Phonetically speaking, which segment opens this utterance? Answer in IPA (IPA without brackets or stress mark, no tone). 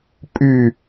pʼ